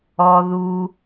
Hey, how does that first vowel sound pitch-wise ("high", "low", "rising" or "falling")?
low